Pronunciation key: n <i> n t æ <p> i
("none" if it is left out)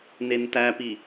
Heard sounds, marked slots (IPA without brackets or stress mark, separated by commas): e, p